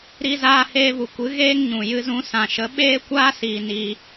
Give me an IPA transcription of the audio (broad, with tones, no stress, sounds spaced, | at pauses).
ɾ i˧ z aː˧ h eː˧ v u˨ kʷ ɨ˨˦ ɣ eː˦ ŋ ɲ ũ˨ j ɨ˧ z ũ˧ s ã˨ ʃ ə˨˦ ɓ eː˦ kʷ aː˦ s iː˨ n i˧